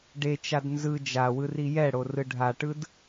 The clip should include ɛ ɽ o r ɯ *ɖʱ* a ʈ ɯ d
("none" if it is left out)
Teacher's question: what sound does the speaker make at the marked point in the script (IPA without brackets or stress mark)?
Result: ɖʱ